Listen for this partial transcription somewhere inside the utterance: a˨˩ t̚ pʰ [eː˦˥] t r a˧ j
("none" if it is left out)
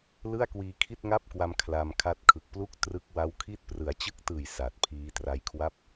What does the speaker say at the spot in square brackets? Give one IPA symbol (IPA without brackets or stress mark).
iː˦˥